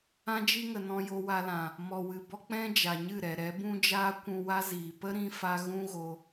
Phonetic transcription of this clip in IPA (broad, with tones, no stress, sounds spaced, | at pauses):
ã˧ d͡ʒ i˧ ŋ ə˨ n ɔ̃˧ j o˧ w a˧ l ã˨ | m ɔ˨ w ɨ˨ b ɔ˦ k͡p ɛ̃˦ d͡ʒ a˨ ɲ ɨ˦˨ ɾ ɛ˨ ɾ ɛ˨˦ b ũ˦ d͡ʒ aː˦ kʷ ũ˧ w a˦ z iː˨ p ə˦ ɾ ĩ˦ f a˦ ɣ ũ˦ ɣ o˧